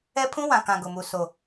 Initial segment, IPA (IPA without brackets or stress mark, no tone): ɛ